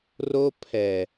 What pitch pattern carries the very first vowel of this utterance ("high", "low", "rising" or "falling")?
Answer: high